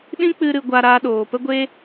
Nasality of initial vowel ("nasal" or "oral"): nasal